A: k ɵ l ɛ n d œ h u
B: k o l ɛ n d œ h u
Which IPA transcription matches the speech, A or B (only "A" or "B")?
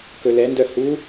A